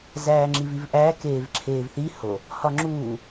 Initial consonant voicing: voiced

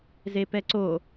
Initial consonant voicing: voiced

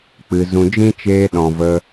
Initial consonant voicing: voiceless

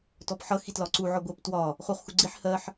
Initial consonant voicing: voiceless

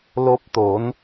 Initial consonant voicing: voiced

